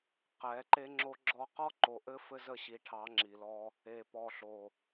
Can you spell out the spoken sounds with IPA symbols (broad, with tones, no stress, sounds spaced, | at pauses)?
q ɛ˨˦ ǃ e˦ ŋ͡ǁ o˦ ɡ͡ǁ ɔ˦ q ɔ˦ ǃ o˨ ʔ ɘ˦ f ɘ˦ z ə˦˨ ɕ i˨ ʈʰ ɑ˨˦ ŋ͡ǁ i˨ l ɔ˦ | e˨ p ɔ˨ ɬ o˨